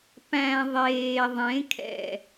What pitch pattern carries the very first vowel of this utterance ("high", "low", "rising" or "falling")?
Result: low